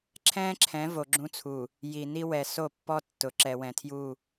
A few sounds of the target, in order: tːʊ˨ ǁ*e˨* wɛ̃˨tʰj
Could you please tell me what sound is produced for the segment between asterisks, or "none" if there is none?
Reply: ɛ˨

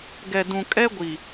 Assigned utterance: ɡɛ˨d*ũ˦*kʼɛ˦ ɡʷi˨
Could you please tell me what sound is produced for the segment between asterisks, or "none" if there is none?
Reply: ũ˨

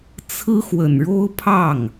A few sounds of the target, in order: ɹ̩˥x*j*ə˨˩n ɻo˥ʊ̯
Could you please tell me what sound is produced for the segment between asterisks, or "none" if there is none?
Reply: w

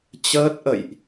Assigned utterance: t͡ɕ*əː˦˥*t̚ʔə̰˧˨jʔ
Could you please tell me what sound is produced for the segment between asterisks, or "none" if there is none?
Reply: əː˦˥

